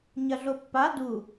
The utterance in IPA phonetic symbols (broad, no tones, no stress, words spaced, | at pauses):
ɲɐɮopːa du